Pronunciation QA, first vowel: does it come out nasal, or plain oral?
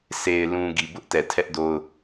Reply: oral